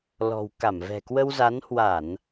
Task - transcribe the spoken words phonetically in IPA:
l ɔ̤˨˩ w k a˧˩ m v ɛ̤˨˩ k w ə˧ w z a˨˦ n h w a˧˩˨ n

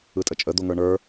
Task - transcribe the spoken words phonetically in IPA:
ɯ tʼ ə t͡ʃʼ ə d̪ o ŋ ə˞ ɳ ə˞

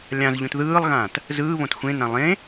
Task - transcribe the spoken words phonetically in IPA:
lʲ ã z ʎ ũ t ð ɯː lˠ ɣ ãː t | z ɯː β õ t xʷ ẽ n ã lˠ ẽ

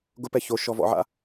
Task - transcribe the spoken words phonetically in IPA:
ɡ ʊ p ɛ ç o ʃ ɔ v ɔ̰ ʕ a̰

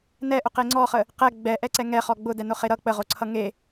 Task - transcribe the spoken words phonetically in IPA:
n ɛ ʔ ʊ q e ŋ͡ǀ ɔ χ ə | q ɛ ɡ͡b ɛ ʔ ɛ ǀ ɛ ŋ ɛ χ ɔ ɡ͡b ʊ d ɛ n ʊ χ e ɾ ʌ k͡p ə ʁ o ǀʰ ʌ ŋ e

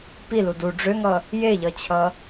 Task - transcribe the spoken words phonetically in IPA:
p i l u d u ɖ͡ʐ ø ŋ ʌ | j e ʎ ʌ t͡ɕʰ ʌ

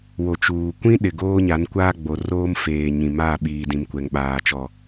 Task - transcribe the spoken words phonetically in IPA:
w o˨ t͡ʃ uː˨ kʷ ĩ˦ ɗ ɪ˨ ɡ oː˦ ɲ a˨˦ n kʷ aː˦ ɡ͡b o˨ r oː˦ m f eː˨ ɲ ĩ˨ m a˦˨ ɓ iː˨ d ĩ˨ m kʷ ɛ˨ ŋ ɓ aː˨ t͡ʃ ɔ˨

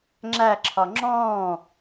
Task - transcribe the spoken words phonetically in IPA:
ŋ͡ǁ æ ǁʰ ɒ ŋ͡ǁ ɔ̃ː

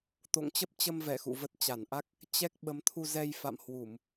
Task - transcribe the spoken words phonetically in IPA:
t̪ o̰˧˨ ŋ t͡ɕ ə˦˥ p̚ t͡ɕ ə˧ m v ɛ˧˩ x ṵ˧˨ v ə˦˥ t̚ t͡ɕ a˧˩ n ʔ a˦˥ k̚ | t͡ɕ ɛ˦˥ k̚ ɓ ə˨˦ m t̪ʰ u˧ z ɛ˧ j f a̰˧˨ m h w u˧˩˨ m

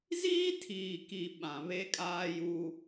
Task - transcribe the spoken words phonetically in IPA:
z iː˦ tʰ iː˨ k i˨ ɓ ã˨ β e˦ kʼ aː˦ j u˦

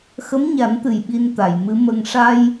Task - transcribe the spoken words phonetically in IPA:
x ə˧˥ m ɲ a˨˩˦ n t̪ ɨ˨˩ j ɓ i˧ n t̪ a˨˩˨ j m ɨ˧˥ m ə˧ ŋ ʂ a˧ j

